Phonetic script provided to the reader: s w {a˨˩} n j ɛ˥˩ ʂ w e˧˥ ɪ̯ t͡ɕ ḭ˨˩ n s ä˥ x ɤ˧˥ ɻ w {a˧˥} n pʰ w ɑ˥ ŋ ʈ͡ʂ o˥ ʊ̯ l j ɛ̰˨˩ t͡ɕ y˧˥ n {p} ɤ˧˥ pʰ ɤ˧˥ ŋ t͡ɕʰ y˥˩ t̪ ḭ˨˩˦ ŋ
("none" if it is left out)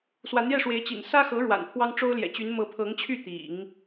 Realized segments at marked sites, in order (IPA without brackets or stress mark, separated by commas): a˧˥, a̰˨˩, m